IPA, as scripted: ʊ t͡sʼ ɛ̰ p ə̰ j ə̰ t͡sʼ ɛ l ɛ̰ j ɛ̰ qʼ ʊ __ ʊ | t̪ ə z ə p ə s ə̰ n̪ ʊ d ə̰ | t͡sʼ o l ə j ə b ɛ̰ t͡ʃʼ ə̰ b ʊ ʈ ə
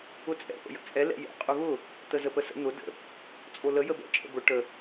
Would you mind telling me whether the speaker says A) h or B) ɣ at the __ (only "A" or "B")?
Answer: B